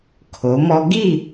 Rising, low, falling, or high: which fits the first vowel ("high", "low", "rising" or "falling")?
rising